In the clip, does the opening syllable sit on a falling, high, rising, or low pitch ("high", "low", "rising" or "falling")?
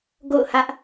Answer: falling